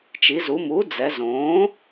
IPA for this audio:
t͡ʃi˩˧zu˩˧ mu˩˥d͡zɛ˩˧zõː˩˥

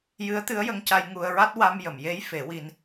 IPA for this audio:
jɨ˧˥ə̯t̪ɨ˧˥ə̯jə˧ŋca˧j ŋu˧ə̯ɹa˦˥t̚ wa˧mjə˨˩˨m je˧˥j fe˨˩˦wi˧n

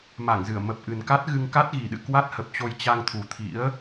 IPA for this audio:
ma˧˩ŋzɨ˧˩ə̯ mə˨˩p̚ʔɨ˨˩nka˦˥t̚ɣɨ˧ŋ ka˦˥t̚ɣi˨˩ɗɨ̰˧˨ kwa˦˥t̚hə˨˩p̚t͡ɕo˧j t͡ɕa˧ŋt̪ʰu˨˩t̪ʰḭ˧˥ə̯

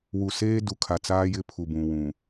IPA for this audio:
wu˨seː˦du˨ kʰa˨t͡saː˦jɪ˦ pʰu˨bũ˨wũ˨

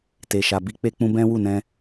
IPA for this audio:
te˨ʃa˨ bi˨˦k͡pe˧k͡pũ˧ bɛ̃˦ wu˦˨nɛ̃˧

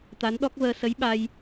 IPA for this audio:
t̪a˨˦nɗɔ˦˥k̚vəː˧ sə˨˦j ɓa˧j

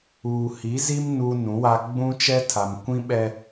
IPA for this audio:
uː˨hi˨˦zi˦m nuː˦nũ˨˦wa˦ ɡ͡bũ˦t͡ʃɛ˦tʰa˨m kʷĩ˦ɓɛ˦

